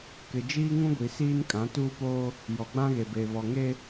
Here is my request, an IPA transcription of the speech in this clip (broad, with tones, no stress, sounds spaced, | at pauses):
k ɪ˨ d͡ʒ iː˦ ŋ ũ˦ ɡʷ i˨ s iː˦ n kʼ ã˨˦ t uː˦ p oː˦ | j ɔ˨ ɡ͡b ã˦ ɣ e˨ b e˨ β ɔ˨ ŋ e˦